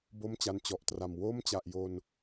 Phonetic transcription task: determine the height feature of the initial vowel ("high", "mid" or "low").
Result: mid